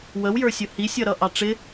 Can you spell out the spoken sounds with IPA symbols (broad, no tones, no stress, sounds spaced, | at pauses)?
w ə w j ə˞ sʲ ʊ h i sʲ ʌ ɾ ʌ ʔ ɑ ʈ͡ʂ ɪ